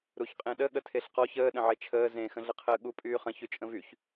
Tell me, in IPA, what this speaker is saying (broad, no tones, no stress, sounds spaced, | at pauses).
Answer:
ɾ u ç qʼ ẽ ɗ ə ɠ ə tʰ e ɬ q ɔ ç əː ɗ ə̃ ʕ e t͡ʃʰ əː z ẽ x ə̃ ɮ ə qʰ əː ɠ u pʼ yː χ ə̃ ç y t͡ʃʼ ə̃ v y ç